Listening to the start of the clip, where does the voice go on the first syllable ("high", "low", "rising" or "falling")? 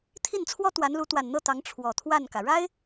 falling